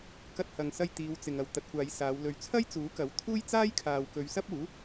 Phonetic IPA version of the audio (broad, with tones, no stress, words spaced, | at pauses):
kɐ˧t̚hɐ˨ŋsɐ˧j t̪iː˨˧w t͡sɪ˨ŋɐ˨w t̪ɐ˨˥t̚kʷaː˨˧jsaː˨˧w lɵ˨˩ɥt͡sʰɐ˥j t͡suː˨˥kɐ˨˥wt̪ʰuː˥j t͡saː˥jkʰaː˨wkɵ˨˧ɥ sɐ˥p̚uː˨˥